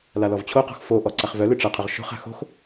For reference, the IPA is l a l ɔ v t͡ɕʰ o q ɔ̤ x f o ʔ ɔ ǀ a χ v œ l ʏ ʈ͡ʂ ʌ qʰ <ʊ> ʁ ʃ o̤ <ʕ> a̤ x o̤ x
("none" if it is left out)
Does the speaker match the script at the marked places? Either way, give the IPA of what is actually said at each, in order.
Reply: ʊ, χ

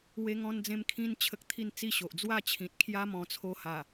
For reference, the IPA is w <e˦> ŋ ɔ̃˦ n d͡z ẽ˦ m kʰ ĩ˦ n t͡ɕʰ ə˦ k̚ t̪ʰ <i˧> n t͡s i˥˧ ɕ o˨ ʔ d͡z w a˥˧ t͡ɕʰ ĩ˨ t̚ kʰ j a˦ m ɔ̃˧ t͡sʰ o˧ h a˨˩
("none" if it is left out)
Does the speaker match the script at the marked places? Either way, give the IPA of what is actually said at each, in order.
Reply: e˦, i˥˧

